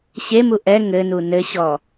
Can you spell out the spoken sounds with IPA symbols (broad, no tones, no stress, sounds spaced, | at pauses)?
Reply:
ɕ e m u ʔ ɛ ŋ ɘ n u n ɘ ɕ ɔ